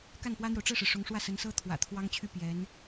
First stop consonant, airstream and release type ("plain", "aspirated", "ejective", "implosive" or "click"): plain